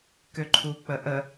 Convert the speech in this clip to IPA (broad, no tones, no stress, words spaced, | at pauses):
køǃʰuk͡pəʔə